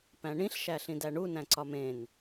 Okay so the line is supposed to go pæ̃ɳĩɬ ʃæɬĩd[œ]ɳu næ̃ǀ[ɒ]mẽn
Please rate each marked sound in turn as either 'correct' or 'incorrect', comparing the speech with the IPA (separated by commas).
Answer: incorrect, correct